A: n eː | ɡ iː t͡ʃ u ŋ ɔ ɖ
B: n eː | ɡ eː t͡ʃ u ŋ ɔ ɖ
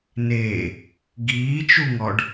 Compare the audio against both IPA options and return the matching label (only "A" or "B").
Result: A